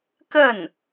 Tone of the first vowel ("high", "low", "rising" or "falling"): falling